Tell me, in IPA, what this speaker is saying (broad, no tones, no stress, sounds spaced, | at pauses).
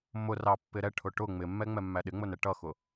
m ʊ r ɑ pː ɪ ɾ ɛ ʈʰ ʊ ʈ ʊ ŋ͡m ɪ mː ɛ ŋ͡m ɛ mː æ ɗ ɪ ŋ͡m ʊ n ɛ ʈ ʌ x ʊ